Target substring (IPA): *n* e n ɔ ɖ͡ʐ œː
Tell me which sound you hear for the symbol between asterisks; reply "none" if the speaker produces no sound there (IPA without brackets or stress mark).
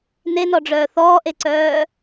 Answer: n